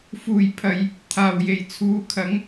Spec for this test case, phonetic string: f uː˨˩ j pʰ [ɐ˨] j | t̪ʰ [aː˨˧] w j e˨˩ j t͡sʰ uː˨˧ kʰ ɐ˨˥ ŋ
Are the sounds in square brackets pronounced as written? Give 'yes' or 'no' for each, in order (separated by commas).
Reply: yes, no